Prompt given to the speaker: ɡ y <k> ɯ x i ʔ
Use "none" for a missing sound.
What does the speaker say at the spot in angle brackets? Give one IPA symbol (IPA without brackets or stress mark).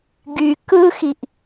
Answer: k